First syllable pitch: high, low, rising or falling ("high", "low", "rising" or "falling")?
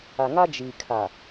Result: low